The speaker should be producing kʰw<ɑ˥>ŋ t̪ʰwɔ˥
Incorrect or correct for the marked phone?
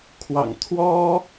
incorrect: ɑ̰˨˩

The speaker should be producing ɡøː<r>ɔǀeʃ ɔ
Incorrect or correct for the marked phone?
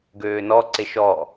incorrect: n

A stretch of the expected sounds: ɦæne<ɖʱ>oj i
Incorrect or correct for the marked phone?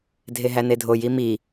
incorrect: dʱ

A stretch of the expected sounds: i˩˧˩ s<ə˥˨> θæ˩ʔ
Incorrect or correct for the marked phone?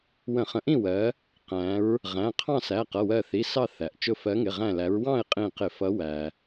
incorrect: ɑ˥˨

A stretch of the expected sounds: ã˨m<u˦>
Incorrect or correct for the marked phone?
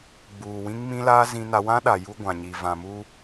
correct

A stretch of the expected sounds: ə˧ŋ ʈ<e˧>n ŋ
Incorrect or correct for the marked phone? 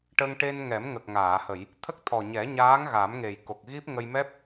correct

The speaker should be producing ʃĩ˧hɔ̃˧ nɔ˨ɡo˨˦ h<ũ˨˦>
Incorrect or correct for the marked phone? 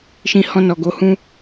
incorrect: ũ˧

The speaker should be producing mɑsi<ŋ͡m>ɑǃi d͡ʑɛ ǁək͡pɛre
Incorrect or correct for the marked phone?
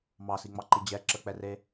correct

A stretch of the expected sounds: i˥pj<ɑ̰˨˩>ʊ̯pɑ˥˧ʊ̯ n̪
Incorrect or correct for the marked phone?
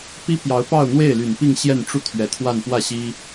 incorrect: ɑ˧˥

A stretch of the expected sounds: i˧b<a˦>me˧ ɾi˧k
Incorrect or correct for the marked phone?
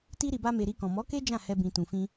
correct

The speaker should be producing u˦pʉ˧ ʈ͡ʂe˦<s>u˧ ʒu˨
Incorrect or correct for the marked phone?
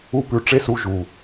correct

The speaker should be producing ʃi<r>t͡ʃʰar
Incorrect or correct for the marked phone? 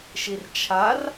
correct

